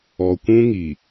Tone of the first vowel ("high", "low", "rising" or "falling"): low